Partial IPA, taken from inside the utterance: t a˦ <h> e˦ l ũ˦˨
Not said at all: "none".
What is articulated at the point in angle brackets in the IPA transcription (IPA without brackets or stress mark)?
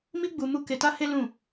h